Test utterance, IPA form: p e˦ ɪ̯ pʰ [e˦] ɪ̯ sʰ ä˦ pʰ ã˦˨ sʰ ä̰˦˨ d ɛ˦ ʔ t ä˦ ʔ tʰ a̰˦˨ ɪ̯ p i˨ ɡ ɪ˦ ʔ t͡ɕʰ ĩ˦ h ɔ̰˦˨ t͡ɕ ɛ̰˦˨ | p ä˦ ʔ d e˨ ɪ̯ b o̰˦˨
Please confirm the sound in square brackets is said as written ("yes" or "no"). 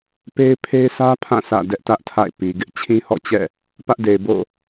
yes